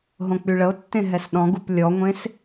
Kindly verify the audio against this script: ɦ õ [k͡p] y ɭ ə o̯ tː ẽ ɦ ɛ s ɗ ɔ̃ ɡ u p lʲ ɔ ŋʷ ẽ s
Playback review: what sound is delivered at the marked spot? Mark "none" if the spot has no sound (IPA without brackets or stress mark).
k͡p